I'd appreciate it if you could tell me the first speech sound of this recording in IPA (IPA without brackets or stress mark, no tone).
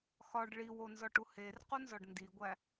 x